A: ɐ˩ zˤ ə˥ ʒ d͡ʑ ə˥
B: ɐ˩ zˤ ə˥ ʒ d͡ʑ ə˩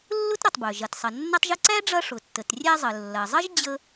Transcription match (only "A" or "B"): A